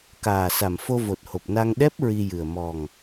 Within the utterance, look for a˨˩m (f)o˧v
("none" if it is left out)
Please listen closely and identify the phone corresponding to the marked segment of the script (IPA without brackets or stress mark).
f